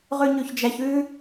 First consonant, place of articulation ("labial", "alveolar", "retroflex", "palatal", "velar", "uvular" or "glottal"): uvular